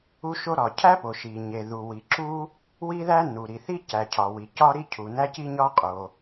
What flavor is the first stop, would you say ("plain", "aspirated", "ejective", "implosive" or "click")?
aspirated